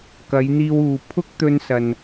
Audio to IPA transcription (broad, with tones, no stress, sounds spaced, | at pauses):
k ɐ˨˧ j n̪ iː˧ w uː˨ pʰ ʊ˥ k̚ t̪ ɵ˧ n s ɐ˨ n